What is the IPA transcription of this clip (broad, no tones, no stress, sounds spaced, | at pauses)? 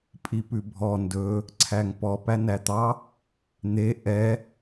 pʼ i p ʉ bʱ ɔ n d ɵ | ǀʰ æ ŋ p ɔ p æ n æ t̪ ɑ | n̪ e ʔ ɛ